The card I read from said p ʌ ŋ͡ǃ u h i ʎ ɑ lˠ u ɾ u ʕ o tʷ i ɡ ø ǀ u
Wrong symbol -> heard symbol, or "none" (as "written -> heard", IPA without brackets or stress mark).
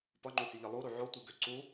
ɑ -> ʌ